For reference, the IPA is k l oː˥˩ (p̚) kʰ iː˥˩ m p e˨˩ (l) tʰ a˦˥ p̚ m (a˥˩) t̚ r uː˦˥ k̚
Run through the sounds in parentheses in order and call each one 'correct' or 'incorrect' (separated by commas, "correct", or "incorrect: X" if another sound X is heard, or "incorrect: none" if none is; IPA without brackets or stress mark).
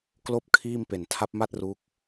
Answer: correct, incorrect: n, correct